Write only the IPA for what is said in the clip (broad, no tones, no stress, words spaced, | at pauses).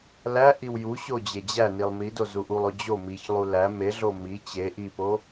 læʔiw juɕo d͡ʑed͡ʑænilˠ mido zuʔulˠo d͡ʑo miçlˠu læ meɮo mi t͡ɕe ʔipo